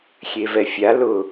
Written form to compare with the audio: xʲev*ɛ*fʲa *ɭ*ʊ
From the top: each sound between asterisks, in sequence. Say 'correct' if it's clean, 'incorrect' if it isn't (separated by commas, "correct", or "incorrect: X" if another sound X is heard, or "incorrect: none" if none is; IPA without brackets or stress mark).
correct, incorrect: l